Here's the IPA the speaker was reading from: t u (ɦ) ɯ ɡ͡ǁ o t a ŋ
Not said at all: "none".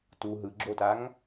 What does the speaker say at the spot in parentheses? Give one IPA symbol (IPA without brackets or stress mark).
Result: ɦ